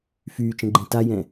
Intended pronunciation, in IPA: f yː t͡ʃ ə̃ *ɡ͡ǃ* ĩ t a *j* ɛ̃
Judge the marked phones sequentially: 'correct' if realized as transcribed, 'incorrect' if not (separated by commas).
correct, correct